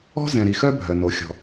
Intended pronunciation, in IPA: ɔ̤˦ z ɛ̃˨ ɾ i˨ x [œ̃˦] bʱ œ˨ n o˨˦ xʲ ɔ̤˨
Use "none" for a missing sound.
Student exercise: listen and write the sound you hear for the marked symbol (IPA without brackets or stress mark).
œ˦